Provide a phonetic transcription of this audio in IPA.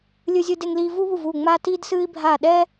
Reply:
lʲ ɨ˦ zʲ ɨ˦ d e˦ ŋ l iː˦ v u˦ β u˦˨ v uː˦˨ ŋ͡m aː˦ t iː˦ d s ɨː˦ i̯ bʱ aː˦˨ ɗ ɛ˦

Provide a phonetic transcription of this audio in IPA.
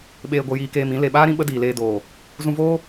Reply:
ɓ eː˧ ɡʷ ə˧ j iː˧ k eː˧ m ĩ˨˦ l e˨ ɓ aː˦ ɾ ĩ˧ ɓ ə˦ d iː˨ l eː˧ d oː˨ | z ũ˧ v oː˦

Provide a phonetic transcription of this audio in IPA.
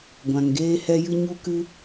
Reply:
ɡʷ ã˧ ŋ ɡ eː˦ h ɛ˦ j ɨ˦ ɲ u˦ k ɨ˦

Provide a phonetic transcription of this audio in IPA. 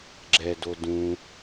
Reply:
ɡ͡ǁ ɛ d o d ũ

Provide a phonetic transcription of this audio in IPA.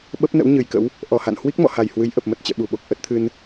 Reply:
ɓ ə˦˥ p̚ n ə̰˧˥ w ɲ ɨ˨˩ j k ə̰˧˥ w | ʔ ɔ˧˩ h a̰˧˨ n h w i˦˥ k̚ m ɔ̰˧˨ h a˨˩ j h w ɨ˨˦ j ʔ ə˨˩ p̚ m ə˨˩ t̚ t͡ɕ ɛ̰˧˨ ɓ u˧˩ ɓ o˨˩ k̚ ʔ ə˦˥ t̚ t̪ʰ ɨ˧ n

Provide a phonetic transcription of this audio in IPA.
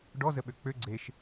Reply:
ɖ ɔ z ə ɓ ø k͡p ø ɡ͡ǀ e ʃ

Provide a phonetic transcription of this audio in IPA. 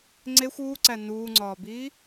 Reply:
ŋ͡ǀ e xʷ uː ǀ æ n uː ŋ͡ǀ ɒː b iː

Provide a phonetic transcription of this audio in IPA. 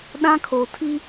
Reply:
ɗ ã˦ kʰ o˨ tʰ i˦

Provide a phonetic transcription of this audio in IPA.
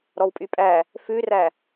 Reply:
ɾ ɔ w pʼ y pʼ æ | f ʉ r æ

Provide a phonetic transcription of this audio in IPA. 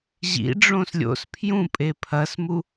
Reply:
ʑ ḭ ɖ͡ʐ õ s lʲ o̰ s pʰ j ũ pʼ e pʰ ɐ s m u

